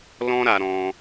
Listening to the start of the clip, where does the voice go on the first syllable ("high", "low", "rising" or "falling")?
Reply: high